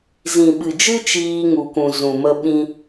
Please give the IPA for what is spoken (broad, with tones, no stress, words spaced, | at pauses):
zĩ˨ɓɨ˨d͡ʒɨ˦ t͡ʃiː˧ŋu˨kũ˨ zũ˨mə˧ɓĩ˧